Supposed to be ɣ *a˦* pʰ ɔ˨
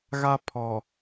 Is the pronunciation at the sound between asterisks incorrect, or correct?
correct